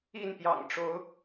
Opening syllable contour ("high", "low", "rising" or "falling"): falling